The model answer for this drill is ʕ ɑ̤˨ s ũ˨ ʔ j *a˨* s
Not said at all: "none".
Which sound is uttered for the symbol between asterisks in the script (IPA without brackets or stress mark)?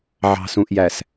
æ˨